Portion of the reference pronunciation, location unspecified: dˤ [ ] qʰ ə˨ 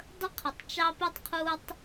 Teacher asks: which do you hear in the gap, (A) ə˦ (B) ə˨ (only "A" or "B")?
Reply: A